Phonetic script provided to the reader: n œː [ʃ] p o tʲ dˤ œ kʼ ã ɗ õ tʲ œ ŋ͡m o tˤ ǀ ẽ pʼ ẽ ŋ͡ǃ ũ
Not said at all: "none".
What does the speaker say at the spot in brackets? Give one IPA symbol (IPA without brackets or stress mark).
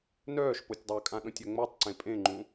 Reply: ʃ